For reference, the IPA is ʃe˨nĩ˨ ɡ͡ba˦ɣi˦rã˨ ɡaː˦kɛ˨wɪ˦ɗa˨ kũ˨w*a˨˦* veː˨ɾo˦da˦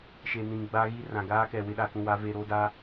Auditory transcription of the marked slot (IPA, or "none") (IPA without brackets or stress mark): a˨˦